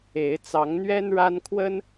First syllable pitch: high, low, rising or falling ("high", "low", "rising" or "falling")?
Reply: rising